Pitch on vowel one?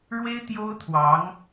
high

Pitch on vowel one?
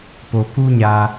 low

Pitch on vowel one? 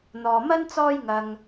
low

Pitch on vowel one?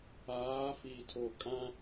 rising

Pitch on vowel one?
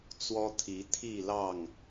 high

